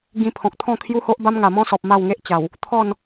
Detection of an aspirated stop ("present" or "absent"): present